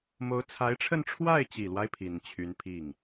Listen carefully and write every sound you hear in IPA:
m o˧˥ ʊ̯ t͡sʰ a˧˥ ɪ̯ ʈ͡ʂʰ ə˥˧ n ʈ͡ʂʰ w a˥˩ ɪ̯ t͡ɕ i˨˩ l w a˦ ɪ̯ pʰ i˨˩ n t͡ɕʰ y˧˥ n pʰ i˥˩ ŋ

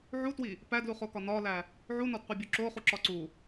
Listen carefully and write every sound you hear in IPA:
ʕ u t w i | p æ d l u χ o k ɒ n ɒ l æ | ʕ u n ɒ d qʷ e bʲ o ǁ o χ u ǁ ɒ ǀ u

